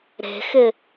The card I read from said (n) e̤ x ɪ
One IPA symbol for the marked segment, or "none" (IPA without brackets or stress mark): ɾ